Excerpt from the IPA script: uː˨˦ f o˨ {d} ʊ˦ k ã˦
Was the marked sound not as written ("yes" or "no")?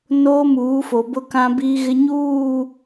yes